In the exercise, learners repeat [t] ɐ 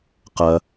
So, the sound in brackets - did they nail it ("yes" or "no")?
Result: no